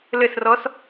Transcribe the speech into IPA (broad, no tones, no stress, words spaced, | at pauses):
lɘsrɔs